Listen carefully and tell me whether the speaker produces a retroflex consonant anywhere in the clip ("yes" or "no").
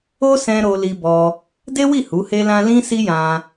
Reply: no